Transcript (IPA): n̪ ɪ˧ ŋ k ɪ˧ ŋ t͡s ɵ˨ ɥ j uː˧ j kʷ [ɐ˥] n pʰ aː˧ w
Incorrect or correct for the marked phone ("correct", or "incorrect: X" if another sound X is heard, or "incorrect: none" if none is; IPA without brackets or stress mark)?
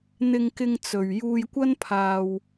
correct